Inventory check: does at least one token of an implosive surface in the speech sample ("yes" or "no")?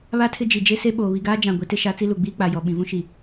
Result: yes